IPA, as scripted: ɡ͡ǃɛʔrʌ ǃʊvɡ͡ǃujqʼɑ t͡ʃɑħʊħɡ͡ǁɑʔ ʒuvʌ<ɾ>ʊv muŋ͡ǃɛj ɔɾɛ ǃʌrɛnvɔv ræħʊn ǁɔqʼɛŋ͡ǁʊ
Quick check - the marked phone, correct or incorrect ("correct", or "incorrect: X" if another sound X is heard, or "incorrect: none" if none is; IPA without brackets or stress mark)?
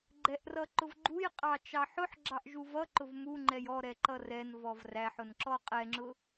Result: incorrect: ǃ